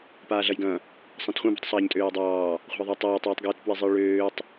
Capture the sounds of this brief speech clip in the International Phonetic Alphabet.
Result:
paːɮɐjɡɐ̃ | sˤɑ̃tχʷɐ̃ bṳtˤsˤaːɲtʼøːjdˤɑː | χʷa̤ɐ̯ðˤɑtˤɑːtˤ iːtˤɡjøtpwizˤɨj ɭøːtˤ

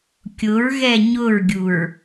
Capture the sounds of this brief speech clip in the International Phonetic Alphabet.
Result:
kʲʊɹɣɛ ɲʊɹɡʲuɹ

